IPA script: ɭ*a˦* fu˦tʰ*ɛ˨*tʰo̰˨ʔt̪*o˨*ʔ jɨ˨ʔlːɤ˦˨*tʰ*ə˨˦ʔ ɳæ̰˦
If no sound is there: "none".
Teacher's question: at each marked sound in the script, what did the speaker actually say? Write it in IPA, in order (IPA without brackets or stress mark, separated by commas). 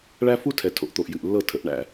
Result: æ˦, ɛ˨, o˨, tʰ